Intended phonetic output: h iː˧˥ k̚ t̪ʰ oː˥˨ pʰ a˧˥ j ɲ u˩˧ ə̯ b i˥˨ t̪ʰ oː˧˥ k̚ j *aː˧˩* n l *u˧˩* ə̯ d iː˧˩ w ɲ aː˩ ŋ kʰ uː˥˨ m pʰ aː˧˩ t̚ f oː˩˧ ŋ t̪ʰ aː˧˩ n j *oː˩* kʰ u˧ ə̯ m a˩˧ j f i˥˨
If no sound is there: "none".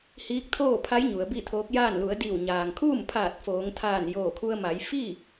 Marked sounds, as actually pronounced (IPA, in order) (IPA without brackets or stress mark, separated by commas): aː˥˨, u˩˧, oː˧˩